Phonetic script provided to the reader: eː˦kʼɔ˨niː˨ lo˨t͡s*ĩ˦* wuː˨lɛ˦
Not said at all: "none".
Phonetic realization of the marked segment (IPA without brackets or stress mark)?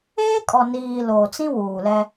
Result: ĩ˦